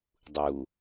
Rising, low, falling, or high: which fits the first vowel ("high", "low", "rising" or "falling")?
low